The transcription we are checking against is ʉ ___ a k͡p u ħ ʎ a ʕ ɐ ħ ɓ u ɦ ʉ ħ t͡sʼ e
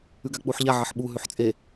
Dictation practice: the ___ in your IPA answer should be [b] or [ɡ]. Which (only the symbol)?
ɡ